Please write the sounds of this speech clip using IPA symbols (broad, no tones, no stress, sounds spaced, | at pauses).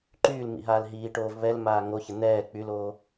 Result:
ǃ yː l m ḭ ɦ aː l ɦ iː ʈ oː v β ɛ l m aː ŋ o ç ə n̪ ɛː k͡p y l oː